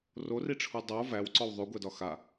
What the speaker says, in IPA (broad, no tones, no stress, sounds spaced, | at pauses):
r o r i ʈ͡ʂʰ u dˤ o v æ w ǀ ɔ w ðˤ ʉ ɡʷ ɛ d ɒ x a